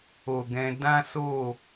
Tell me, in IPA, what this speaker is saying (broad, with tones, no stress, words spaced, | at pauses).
o˨ɡɛ̃˧ dã˦so˦˨